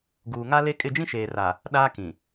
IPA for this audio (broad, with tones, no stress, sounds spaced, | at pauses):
ɡ uː˨ ŋ a˦ l e˦ kʼ ɪ˦˨ d͡ʒ ĩ˦ ʃ eː˨ r a˨ | ɗ aː˦ k ĩ˨